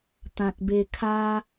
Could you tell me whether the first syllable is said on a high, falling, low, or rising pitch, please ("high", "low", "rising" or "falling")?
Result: low